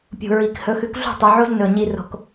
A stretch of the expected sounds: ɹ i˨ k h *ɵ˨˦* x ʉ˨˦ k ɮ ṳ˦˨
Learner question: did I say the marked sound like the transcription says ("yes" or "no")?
yes